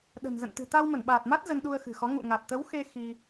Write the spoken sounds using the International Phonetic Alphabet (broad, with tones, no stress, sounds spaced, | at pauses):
ɗ ə̤˨˩ n z ə̰˧˨ n t̪ ɨ̤˨˩ t̪ a˧ w m ə˧˩ n ɓ aː˨˩ t̚ m a˦˥ t̚ z ə˧ n ɗ u˧ ə̯ x ɨ̤˨˩ x ɔ˨˦ ŋ ṵ˧˨ ŋ a˨˩ t̚ t̪ ə˨˦ w x e˧ x i˧